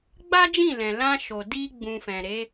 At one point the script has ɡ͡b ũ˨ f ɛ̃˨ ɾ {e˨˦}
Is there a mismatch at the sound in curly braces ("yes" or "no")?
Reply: no